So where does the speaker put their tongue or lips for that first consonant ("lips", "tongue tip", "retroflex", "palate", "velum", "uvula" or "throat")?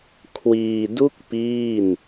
velum